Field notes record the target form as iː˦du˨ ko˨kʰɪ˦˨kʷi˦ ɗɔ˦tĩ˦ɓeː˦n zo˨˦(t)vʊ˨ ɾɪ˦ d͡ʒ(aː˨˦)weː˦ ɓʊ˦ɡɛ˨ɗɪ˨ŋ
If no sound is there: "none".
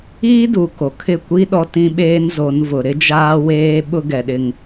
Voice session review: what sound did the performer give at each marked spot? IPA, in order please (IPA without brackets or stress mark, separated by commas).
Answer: n, aː˦